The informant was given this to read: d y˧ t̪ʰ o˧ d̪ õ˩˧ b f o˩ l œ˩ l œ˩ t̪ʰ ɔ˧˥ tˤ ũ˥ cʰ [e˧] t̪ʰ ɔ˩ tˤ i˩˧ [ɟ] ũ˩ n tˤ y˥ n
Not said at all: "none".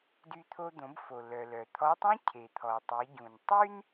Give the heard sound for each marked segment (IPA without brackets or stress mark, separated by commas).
e˩, ɟ